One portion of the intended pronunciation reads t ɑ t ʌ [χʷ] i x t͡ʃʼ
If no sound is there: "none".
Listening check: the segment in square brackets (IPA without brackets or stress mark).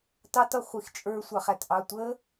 χʷ